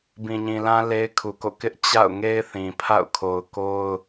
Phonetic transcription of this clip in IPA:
b ĩ˨ ɲ ĩ˨ l ã˦ l e˦ ɪ̯ kʰ u˨ k o̰˦˨ k ɪ˦ ʔ t͡ɕ a̰˦˨ ʊ̯ ŋ e˦ ɪ̯ θ ĩ˨ pʰ a̰˦˨ ʊ̯ kʰ o˨ ʊ̯ k o˦ ʊ̯

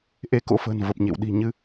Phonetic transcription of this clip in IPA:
ʔ e˧ k o̰˧˥ f ə̤ː˨˩ n v ə˨˩ p̚ ɲ ḛ˧˨ w ɗ i̤˨˩ ɲ ɨ˧

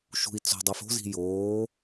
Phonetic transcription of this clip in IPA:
ʃ ṳ i̯ t͡s o̤ dˤ u f o̤ z i̤ j oː

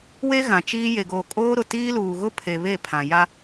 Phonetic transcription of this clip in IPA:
w e˦ ɣ ã˨ t͡ʃ iː˦ j e˨ ɡ oː˨ kʼ oː˦ ɾ ʊ˨ t iː˦ l uː˨ ɣ ʊ˦ pʰ e˨ β e˦˨ pʰ ã˨ j a˦

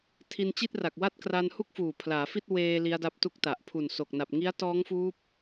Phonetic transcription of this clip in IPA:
tʰ i˧ n t͡ɕ i˥˩ t̚ r a˨˩ k̚ w a˥˩ t̚ k r a˧ n h u˥˩ k̚ f uː˨˩ pʰ l aː˩˦ f i˥˩ t̚ w eː˧ l i˦˥ a̯ d a˦˥ p̚ t u˥˩ k̚ t a˨˩ ʔ pʰ u˨˩ n s o˨˩ k̚ n a˨˩ p̚ ŋ i˦˥ a̯ t ɔː˦˥ ŋ f uː˦˥ p̚

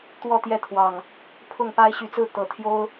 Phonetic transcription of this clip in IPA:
t̪ w ɔ˥˨ t̪ j ɛ˥˨ t̪ʰ w ɑ˨˩ ŋ | pʰ ʊ˥˨ ŋ p a˦ ɪ̯ ɕ y˨˦ t͡s ɹ̩˥˨ t̪ ɤ˨˩ t̪ʰ j o˦ ʊ̯

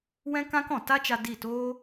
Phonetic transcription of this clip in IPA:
w ɛ̃˦ k ã˦ k ɔ̃˨ t a˦ t͡ʃ a˧ d i˦˨ t oː˦

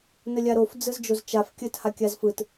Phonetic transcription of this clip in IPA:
n ə lʲ a ɾ o f d͡z ɯ z d͡ʒ o z t͡ʃ a f kʲ ə t h a kʲ a z f ɯ t

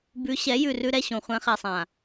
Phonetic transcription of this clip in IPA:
b ʉ˨˦ ɕ ɛ˨˦ j ʉ˦˨ r ʉ˦ ɾ ɛ˦ ɕ õ˨ χʷ ɛ̃˨˦ χ ɛ˨ sˤ ã˨

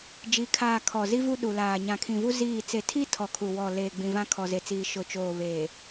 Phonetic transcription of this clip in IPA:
d͡ʒ i˨˦ kʰ aː˨ kʰ ɔ˨ z i˦ v u˦ ɗ u˨ l aː˨ ɲ ã˨ kʰ ĩ˨ v u˦ z iː˦˨ t͡s e˨ tʰ i˦ tʰ ɔ˨ kʰ u˨ w ɔ˨ l eː˨ ɡ͡b ĩ˨ v ã˦ kʰ ɔ˨ z e˨ t͡s iː˨ ʃ ʊ˨ t͡ʃ oː˨ β eː˨

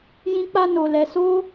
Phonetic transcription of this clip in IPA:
j ĩ˦ k͡p a˦ n o˧ l ɛ˧ s o˦

